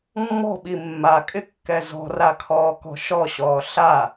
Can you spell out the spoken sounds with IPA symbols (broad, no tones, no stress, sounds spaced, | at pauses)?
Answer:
mː ɔ̤ ɓ i mː a kʼ ɪ kː ɛ z ɔ̤ r a kʰ ɔː k ɔ̤ ʃ ɔ ɕ ɔː ɬ a